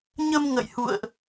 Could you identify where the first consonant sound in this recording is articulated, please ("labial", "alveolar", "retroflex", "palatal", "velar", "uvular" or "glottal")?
palatal